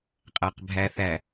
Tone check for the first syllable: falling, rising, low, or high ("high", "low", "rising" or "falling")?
low